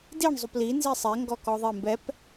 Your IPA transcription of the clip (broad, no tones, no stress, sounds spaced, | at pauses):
d i ɳ zˤ u p l i n z i sˤ e ŋ ɡ ɔ k ɔ ðˤ i m b ɛ p